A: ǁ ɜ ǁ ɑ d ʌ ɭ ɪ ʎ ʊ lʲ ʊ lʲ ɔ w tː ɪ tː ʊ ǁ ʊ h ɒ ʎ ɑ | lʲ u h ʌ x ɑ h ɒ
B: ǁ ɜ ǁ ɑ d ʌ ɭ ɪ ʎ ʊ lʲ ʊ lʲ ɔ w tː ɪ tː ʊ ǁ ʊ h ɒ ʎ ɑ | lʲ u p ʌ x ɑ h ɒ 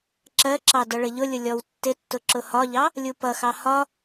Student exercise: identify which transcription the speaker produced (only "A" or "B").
B